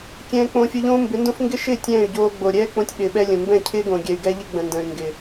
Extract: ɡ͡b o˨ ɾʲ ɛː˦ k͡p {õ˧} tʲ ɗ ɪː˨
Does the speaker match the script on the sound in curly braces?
yes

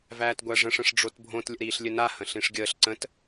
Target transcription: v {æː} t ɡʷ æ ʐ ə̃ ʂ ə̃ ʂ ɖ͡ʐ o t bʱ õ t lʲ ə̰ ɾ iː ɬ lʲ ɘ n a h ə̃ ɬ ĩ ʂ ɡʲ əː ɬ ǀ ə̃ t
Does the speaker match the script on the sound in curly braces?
yes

